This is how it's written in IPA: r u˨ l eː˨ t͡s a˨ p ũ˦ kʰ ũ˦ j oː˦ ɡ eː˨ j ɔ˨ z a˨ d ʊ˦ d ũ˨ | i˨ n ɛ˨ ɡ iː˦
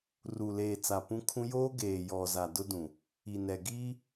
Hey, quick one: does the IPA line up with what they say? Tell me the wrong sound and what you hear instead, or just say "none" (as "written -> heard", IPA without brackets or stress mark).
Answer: none